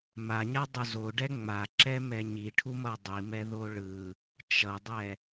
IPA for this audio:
m a ɲ a dˤ u z o ɖ ɛ ŋ͡m a ǁ ɛ m ɛ ɲ i ʈʰ u m ʌ dˤ i m ɛ ð o ɭ ɯ | t͡ʃ ʌ dˤ ɛ

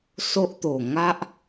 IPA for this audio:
s o˦ ʔ t̪ o˨˩ ŋ a˦ ʔ

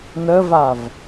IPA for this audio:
n ə v a v

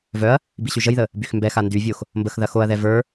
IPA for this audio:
v œ ɐ̯ | b i ɕ y ʒ ə j ð ə | b y x m b ɛ x a n d y vʲ o x | m b ə x ð ɐ x o ɐ̯ ð ɛ v ə˞

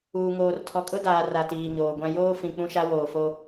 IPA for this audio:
uː˨ ŋ oː˨ r tʰ ɔ˨ kʼ ʊ˦ d aː˨ r a˨ t iː˨ ɲ oː˨ ɡʷ ã˦ j oː˦ f ĩ˨ k͡p ũ˦ ʃ a˦ w oː˨ f o˦

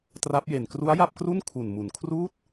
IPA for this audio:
t r a˦˥ p̚ j e˨˩ n k r u˦˥ a̯ j a˥˩ p̚ k r u˥˩ n kʰ u˨˩ n m u˨˩ n kʰ r uː˥˩ t̚

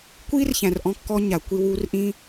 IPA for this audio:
kʷ iː˦ r ç æ̃˨ r ʔ ɔ̃˧ kː ɔ˧ ɲ a˨ kʷ i˧ w uː˧ r ʔ ĩ˦

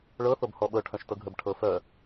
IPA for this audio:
ɭ ɤ θ o b h ɔ ɓ ɤ ʈʰ œ̃ ʃ t ɤ ɡʱ ə b ʈʰ ɤ f œ

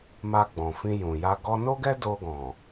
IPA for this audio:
m a˧ ɡ͡b ɔ̃˨ f ĩ˧ j ũ˨ j a˧ ɡ ɔ˧ n o˦ ɡ ɛ˦ d o˧ ɡ ɔ̃˨

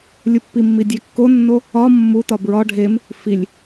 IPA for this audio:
lʲ u pː i mː i dʲ æ kː o nː o | ɒ mː u t ɒ b ɹ ɒ ɖʱ e m | f i lʲ

